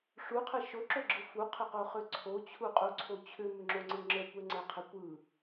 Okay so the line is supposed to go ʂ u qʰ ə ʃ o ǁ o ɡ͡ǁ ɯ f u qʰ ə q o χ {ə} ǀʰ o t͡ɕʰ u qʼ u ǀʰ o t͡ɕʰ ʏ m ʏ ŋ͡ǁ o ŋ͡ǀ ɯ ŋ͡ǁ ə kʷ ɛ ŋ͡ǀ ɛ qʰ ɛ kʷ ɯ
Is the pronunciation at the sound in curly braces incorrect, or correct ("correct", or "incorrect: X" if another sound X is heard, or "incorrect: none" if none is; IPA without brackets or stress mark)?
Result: incorrect: ʏ